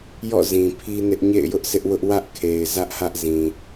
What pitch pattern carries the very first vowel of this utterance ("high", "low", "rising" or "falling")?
falling